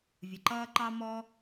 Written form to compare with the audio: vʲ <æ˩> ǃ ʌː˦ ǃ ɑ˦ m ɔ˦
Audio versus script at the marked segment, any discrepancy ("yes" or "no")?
yes